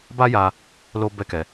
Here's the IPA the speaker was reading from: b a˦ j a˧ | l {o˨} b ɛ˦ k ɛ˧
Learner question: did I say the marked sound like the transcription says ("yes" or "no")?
no